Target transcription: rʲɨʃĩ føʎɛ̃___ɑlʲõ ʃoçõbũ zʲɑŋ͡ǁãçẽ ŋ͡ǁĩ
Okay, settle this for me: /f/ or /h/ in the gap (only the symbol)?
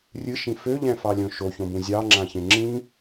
f